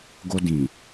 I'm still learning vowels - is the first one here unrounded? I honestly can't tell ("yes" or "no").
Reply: no